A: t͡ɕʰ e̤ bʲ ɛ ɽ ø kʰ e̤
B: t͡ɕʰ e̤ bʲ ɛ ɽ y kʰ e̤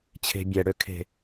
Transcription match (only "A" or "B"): A